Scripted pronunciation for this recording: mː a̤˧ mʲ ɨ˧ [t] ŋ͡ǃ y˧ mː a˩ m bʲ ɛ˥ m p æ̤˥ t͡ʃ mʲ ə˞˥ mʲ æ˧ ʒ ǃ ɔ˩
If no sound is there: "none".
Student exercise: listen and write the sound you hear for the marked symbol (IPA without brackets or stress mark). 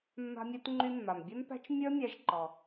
t